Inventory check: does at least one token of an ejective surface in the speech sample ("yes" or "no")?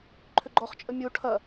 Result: yes